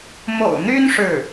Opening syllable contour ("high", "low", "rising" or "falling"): low